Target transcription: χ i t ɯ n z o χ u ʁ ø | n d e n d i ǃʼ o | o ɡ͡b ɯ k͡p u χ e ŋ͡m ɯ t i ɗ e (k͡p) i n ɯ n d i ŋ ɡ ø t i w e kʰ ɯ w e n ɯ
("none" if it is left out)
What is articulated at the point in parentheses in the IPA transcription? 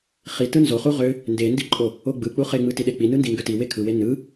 k͡p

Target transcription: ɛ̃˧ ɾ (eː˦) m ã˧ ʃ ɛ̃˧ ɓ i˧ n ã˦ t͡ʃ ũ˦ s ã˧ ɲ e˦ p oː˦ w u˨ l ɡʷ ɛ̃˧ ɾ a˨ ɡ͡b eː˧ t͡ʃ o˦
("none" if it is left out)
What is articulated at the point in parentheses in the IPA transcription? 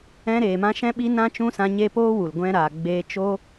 eː˨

